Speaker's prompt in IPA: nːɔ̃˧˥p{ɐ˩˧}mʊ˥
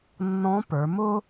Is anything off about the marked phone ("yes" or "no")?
yes